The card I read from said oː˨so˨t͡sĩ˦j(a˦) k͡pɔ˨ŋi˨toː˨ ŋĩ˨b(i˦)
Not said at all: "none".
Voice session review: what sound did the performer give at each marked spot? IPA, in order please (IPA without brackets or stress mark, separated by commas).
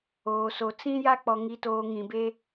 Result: a˦, e˦